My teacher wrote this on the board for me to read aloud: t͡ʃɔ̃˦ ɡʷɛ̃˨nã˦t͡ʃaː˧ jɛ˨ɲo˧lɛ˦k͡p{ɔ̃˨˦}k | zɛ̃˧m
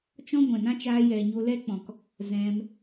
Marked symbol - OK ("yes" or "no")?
no